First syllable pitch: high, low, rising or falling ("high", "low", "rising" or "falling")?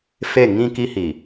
falling